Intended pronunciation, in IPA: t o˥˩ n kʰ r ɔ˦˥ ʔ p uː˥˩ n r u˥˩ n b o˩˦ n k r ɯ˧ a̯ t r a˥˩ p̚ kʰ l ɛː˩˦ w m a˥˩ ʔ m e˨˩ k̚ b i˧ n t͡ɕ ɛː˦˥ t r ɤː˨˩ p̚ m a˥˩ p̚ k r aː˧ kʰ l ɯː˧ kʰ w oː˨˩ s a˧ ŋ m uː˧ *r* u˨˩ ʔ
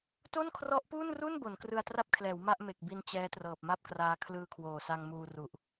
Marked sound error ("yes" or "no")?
no